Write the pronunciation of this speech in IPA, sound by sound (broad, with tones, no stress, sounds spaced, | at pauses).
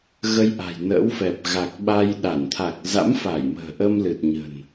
ɣ ə˧ j ʔ a̤˨˩ j n ə̰ː˧˥ w f ɛ˨˩ p̚ ɣ a˨˩ k̚ ɓ a˧ j ɗ a˧˩ n t̪ʰ a˨˩ k̚ z a̰˧˥ m f a˧˩ j m ə̤ː˨˩ ʔ ə˧ m l ɨ˨˩ t̚ ɲ ə̤˨˩ n